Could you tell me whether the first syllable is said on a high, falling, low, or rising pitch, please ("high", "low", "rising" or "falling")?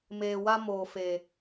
low